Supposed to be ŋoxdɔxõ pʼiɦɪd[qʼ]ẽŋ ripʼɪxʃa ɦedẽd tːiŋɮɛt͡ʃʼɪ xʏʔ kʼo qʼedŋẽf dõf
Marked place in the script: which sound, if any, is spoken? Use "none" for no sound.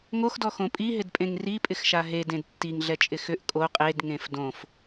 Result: pʼ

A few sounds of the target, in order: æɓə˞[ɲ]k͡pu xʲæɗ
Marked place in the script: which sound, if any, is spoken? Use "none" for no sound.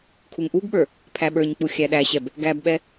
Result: ɲ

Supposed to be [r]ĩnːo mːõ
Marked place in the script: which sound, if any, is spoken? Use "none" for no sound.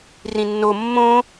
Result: r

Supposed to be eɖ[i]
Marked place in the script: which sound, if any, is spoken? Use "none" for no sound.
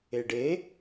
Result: e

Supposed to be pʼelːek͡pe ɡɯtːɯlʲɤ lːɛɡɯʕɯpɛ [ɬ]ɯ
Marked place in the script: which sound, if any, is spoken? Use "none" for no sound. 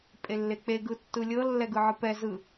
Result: z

